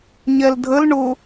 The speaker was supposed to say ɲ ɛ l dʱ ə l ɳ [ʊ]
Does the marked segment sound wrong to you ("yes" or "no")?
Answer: no